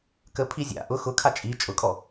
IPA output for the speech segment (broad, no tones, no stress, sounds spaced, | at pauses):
k ə pʰ i zʲ a̰ ʔ ʊ x ʊ kʰ a t͡ʃʼ i t͡ʃʼ ʊ kʼ ɔ